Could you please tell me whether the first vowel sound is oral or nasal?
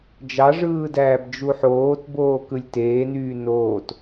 oral